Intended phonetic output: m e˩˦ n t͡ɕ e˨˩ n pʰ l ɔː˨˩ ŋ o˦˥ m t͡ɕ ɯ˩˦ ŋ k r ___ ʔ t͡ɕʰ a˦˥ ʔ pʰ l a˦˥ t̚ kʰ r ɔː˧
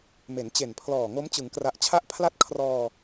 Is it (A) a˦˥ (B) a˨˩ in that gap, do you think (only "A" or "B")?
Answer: B